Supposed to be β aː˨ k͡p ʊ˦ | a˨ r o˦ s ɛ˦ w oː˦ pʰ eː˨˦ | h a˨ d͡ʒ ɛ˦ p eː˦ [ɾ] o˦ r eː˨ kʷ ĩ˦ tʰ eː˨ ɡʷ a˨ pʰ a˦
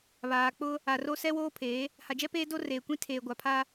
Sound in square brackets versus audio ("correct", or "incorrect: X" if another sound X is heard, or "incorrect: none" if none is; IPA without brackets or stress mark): incorrect: d